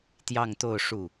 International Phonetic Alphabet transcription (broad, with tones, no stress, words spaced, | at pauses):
t̪jɑ˥˧ŋt̪o˥˧ʊ̯ ʂu˥˩